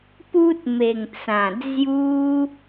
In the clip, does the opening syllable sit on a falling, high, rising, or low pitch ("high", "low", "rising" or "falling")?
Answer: high